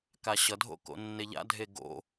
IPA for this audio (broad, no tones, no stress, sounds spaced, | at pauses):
k a ɕ ʌ dʱ o̰ k o̰ nː e ʎ a̰ dʱ e ɡ o̰